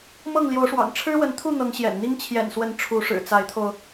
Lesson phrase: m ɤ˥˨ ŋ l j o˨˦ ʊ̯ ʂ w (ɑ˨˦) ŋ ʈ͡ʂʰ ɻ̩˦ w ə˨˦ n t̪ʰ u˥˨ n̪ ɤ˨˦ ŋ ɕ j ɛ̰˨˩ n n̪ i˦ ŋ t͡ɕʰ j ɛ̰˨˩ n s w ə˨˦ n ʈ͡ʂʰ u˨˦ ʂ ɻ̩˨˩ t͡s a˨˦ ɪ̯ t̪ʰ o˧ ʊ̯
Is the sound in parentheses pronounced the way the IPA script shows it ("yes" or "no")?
no